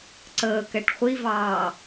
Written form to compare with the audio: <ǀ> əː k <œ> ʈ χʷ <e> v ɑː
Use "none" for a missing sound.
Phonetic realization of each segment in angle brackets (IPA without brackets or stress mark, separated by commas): ǀ, ɛ, i